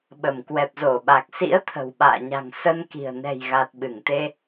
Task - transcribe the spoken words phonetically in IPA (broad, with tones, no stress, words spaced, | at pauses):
ɓə˧˩m kwɛ˨˩p̚zo˧˩ɓa˨˩k̚sḭ˧˥ə̯ t̪ʰə̤˨˩wɓa̰ː˧˨ɲa̤˨˩ŋ sə˧nki̤˨˩ə̯ nɛ̤˨˩jɣa˨˩t̚ ɓɨ˧˩ŋt̪e˧